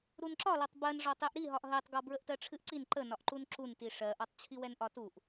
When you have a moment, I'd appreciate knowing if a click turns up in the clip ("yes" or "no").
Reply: yes